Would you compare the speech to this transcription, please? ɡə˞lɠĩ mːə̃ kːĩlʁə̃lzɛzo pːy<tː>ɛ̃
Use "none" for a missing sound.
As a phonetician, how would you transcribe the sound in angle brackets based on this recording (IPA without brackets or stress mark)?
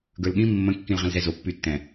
tː